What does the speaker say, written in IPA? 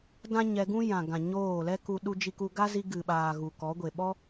d ã˦ ɲ ɛ˧ ɡ ũ˦ j ã˨ ɡ ã˨ ɲ oː˦˨ l ɛ˦ k u˧ ɗ u˧ d͡ʒ i˧ k u˧ ɡ a˦ z i˧ ɡ ɨ˨ ɓ aː˨ ɣ u˨ k ɔ˨˦ ɡʷ e˨ ɓ ɔ˦

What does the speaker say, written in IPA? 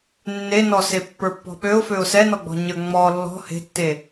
nː e n ɔ s e pː ə˞ pː ɔ̤ ɓ ø ʊ̯ f ø ʊ̯ s ɛ n ɔ ɡ͡b ɔ̤ ɲ ə˞ ŋ͡m ɔ lː ɔ̤ h e̤ tː e

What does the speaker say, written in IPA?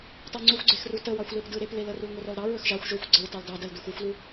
t ɑ ŋ͡ǀ u xʷ ɡ͡ǀ e x r u t ə w ɑ xʷ l e p d ɯ ɾ e p l e l ə r u l ŋʷ ə r ɔ l ɾ ɑ ɹ ɵ x ʒ ɑ xʷ ʒ ɵ xʷ ɡ͡ǀ ə ɹ t ɑ l d ɑ d ə l d u x u xʷ l u

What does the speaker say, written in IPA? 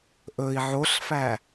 ʔ ɵ i̯ ʕ o ɬ f æ

